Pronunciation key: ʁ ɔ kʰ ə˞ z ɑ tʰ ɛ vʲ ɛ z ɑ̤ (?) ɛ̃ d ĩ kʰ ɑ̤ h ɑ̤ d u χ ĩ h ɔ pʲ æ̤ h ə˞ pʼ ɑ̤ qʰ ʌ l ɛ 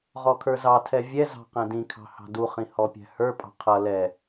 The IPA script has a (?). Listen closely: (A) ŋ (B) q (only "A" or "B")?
B